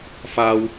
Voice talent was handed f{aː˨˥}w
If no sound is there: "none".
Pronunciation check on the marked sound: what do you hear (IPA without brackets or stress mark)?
aː˨